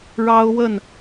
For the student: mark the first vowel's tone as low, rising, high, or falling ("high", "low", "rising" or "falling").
high